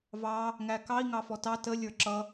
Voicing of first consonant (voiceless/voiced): voiced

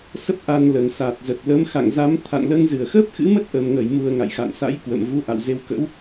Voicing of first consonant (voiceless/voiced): voiceless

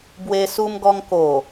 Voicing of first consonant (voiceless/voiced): voiced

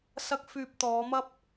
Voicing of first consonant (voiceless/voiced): voiceless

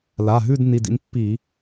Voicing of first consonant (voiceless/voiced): voiced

